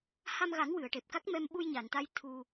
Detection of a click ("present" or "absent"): absent